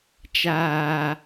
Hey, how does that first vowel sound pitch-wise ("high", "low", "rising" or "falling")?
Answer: low